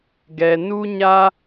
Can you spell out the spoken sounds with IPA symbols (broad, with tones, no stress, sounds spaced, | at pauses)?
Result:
ɡ ɛ˨ n u˦ ɲ a˦